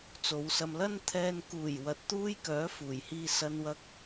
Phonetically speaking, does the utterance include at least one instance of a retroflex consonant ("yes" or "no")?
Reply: no